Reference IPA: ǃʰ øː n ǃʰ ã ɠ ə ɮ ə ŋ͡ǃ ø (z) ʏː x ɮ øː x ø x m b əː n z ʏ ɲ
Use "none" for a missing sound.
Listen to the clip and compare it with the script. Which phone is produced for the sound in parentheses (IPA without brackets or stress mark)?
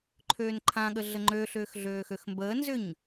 ɬ